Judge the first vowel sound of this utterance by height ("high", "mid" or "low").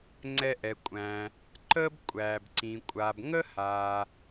mid